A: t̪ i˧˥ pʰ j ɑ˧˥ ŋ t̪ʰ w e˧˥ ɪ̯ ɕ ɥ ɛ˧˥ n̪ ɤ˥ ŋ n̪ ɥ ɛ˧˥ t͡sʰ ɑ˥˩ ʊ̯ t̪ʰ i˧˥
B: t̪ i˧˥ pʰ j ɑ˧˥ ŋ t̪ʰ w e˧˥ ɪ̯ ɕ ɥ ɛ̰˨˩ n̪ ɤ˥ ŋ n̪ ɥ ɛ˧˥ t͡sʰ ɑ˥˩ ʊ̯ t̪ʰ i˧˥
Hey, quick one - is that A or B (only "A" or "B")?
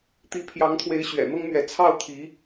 B